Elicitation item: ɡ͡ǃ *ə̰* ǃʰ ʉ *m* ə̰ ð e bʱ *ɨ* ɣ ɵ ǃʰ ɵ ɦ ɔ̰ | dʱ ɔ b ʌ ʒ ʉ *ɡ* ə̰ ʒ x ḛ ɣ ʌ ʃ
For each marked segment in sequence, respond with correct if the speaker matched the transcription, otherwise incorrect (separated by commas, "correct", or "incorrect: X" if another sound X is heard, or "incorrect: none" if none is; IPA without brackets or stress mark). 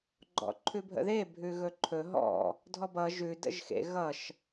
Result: incorrect: ɔ̰, incorrect: bʱ, incorrect: ʉ, incorrect: d